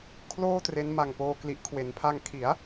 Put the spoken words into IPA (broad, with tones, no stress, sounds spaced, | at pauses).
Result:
kʰ l oː˥˩ t r e˦˥ n m a˨˩ ŋ p oː˧ k l i˨˩ ʔ kʰ w e˩˦ n pʰ a˧ ŋ kʰ i˩˦ a̯